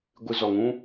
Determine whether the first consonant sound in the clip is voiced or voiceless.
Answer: voiced